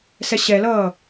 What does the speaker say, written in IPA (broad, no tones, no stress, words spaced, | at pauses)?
sɛɕɛlʌː